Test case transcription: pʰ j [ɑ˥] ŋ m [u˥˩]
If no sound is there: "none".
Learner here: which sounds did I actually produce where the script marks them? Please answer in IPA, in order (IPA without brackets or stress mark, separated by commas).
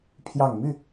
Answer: ɑ˨˩, y˥˩